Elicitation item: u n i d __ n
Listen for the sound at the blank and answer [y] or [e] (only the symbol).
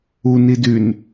y